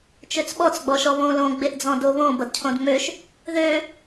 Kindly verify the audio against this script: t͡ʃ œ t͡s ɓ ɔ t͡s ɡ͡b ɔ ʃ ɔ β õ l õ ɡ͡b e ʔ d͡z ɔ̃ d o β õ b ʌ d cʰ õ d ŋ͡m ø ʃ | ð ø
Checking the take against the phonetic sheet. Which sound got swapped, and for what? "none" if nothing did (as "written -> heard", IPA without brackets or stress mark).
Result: œ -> ø